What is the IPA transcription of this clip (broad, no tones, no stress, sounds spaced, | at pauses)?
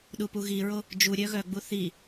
ɗ u p u ɣ i ɹ o | d͡ʒ u ɾʲ œ ɣ œ ɡ͡b u θ i